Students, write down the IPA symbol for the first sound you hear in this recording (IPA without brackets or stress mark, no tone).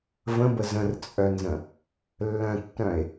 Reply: v